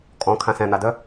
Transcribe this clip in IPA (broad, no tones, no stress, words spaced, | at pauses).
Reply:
kʼɔ̃kʰã sɛ̃n̪adœ